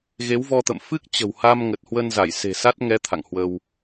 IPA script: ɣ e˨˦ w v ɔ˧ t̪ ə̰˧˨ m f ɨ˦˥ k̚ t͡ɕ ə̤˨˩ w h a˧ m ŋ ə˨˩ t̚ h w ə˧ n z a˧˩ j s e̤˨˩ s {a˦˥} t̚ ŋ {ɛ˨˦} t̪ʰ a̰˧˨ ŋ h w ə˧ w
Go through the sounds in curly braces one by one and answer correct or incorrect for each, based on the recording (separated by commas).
correct, correct